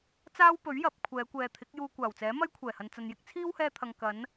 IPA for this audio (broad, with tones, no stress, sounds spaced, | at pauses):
t͡s aː˥ w p ɵ˨˥ ɥ j ɐ˨˥ p̚ kʷʰ ɛː˨˧ kʷ ɛː˨ t̪ʰ ɪ˨˥ k̚ j uː˧ kʷ aː˨˩ w t͡s ɛː˨˥ m ɐ˥ j kʷʰ ɛː˨˩ h ɐ˨ n t͡s ɐ˨ n j ɪ˥ k̚ t͡sʰ iː˥ w h ɛː˧ t̪ʰ ɐ˨ ŋ k ɐ˨˧ n